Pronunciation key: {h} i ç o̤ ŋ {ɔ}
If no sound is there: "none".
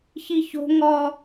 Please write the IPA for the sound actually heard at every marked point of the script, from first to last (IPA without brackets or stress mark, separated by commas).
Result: ç, ɔ